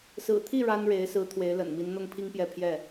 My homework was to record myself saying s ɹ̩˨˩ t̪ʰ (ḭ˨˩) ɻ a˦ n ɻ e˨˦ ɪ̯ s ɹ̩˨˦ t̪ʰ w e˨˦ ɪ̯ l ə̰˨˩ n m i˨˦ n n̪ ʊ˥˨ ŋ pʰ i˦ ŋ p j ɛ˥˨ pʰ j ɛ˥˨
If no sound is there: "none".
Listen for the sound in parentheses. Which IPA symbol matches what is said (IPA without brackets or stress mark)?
i˥˨